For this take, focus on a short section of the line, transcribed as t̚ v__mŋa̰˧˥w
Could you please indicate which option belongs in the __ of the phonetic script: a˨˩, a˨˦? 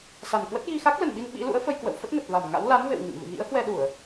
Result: a˨˩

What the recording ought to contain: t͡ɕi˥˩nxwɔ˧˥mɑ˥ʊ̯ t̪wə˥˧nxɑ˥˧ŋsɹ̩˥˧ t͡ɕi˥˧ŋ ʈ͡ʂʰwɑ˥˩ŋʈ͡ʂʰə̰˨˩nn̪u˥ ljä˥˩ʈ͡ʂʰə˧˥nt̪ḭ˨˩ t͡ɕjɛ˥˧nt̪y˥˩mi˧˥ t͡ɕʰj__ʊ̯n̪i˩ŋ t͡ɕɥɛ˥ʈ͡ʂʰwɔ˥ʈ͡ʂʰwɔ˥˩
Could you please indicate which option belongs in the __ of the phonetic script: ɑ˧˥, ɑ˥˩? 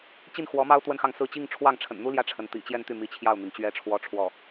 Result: ɑ˥˩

